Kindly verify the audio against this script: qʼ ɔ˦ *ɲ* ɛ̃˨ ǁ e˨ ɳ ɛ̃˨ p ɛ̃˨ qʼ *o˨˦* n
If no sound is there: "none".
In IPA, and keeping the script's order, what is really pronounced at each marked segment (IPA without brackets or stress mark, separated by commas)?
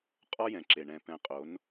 j, o˨˦